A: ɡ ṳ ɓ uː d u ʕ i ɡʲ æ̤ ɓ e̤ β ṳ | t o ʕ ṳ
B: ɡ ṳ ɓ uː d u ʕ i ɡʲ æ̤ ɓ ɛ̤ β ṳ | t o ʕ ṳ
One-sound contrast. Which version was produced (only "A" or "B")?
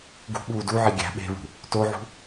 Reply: A